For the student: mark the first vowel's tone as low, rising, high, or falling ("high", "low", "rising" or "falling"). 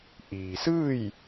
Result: low